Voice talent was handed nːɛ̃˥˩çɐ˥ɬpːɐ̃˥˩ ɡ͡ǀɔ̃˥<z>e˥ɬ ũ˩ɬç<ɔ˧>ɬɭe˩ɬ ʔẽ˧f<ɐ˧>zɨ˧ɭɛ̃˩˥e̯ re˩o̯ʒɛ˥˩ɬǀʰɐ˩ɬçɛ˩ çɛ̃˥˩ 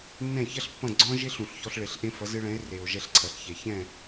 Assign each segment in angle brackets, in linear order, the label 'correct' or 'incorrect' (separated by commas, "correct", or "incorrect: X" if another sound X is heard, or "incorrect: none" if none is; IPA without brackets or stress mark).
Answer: incorrect: ʒ, correct, incorrect: ɐ˩˥